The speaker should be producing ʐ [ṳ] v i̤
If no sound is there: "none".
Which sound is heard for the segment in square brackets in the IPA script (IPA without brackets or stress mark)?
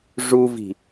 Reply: u